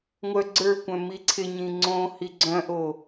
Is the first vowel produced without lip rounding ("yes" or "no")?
no